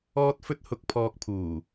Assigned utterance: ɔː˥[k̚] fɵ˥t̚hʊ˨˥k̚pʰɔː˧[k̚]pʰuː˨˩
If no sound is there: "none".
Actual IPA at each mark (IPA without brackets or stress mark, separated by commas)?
t̚, k̚